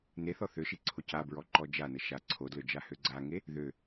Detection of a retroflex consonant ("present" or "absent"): absent